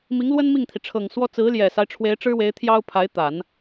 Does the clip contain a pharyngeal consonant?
no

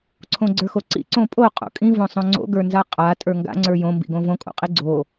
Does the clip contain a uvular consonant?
yes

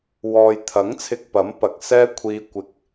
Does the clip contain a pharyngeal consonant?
no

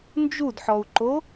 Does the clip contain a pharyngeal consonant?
yes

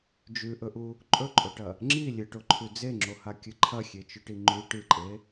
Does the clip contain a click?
yes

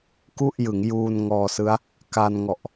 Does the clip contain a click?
no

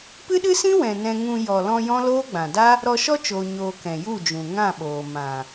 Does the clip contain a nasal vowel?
yes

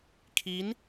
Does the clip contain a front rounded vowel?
no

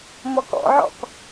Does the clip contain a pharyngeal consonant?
yes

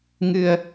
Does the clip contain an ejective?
no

